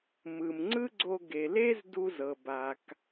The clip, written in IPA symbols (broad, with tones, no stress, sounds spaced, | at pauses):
m ɯ˩ m ŋ͡ǀ ɯ˥ ɡ͡ǀ o˧ ɡ e˩ l e˥ z d u˧ z ɤ˩ b a˩ k